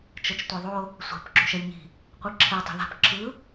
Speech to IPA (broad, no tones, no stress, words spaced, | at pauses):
t͡ʃʌt͡ʃtʷeðˤo | sʷɛ̤p ǁṳʃɛlʲɲi̤ | qʷɯǁʰe tˤi̤ða̤p ǁʰɯ